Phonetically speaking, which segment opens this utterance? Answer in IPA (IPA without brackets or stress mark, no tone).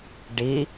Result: ɖ